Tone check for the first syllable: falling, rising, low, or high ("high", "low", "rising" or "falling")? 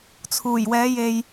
low